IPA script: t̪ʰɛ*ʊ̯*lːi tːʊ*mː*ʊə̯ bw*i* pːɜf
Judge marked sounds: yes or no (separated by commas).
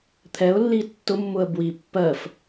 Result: yes, yes, yes